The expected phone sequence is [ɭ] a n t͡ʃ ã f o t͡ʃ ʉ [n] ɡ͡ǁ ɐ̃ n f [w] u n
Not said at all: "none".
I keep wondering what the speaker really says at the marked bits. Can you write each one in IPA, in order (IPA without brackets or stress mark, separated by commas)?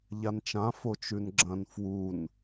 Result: ʎ, n, w